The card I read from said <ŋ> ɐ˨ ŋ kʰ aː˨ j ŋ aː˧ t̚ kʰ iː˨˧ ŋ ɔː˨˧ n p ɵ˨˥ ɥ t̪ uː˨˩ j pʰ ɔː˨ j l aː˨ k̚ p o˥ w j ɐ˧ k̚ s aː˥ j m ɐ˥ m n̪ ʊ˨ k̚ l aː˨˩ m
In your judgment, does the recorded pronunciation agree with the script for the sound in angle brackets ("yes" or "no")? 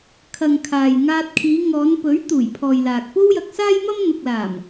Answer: no